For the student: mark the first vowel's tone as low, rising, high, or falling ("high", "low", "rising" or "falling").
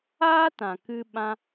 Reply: high